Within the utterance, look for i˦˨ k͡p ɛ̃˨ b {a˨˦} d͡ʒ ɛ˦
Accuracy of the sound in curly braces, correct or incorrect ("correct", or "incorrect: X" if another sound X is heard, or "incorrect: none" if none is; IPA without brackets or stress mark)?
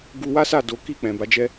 correct